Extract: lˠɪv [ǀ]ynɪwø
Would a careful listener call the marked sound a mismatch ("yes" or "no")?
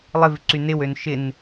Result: no